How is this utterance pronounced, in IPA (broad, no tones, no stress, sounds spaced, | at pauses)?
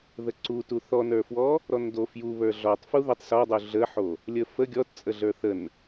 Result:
ð ə ǀ u t u θ ɔ n ə˞ f w ɔ | ɾ ɔ n d o f j u β ə˞ ɮ ɔ tˤ f u ð ə tˤ s ɔ dˤ u ɮ ə ħ o | lʲ ə f ə ɡʲ ɔ t t͡sʼ ə ɮ ə˞ θ ə n